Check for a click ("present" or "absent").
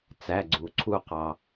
present